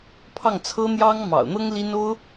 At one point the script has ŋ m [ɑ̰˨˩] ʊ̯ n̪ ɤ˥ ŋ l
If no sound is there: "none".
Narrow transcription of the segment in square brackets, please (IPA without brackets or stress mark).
ɑ̰˨˩